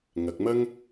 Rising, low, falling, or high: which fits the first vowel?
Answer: low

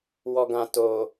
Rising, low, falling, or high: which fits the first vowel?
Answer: low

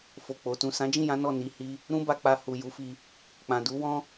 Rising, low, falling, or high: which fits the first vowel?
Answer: low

